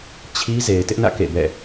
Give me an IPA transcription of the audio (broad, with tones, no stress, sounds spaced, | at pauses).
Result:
t͡ɕʰ i˦ z e˨ ɪ̯ t ɪ˦ ʔ n ä̰˦˨ k ḛ˦˨ b ɛ̰˦˨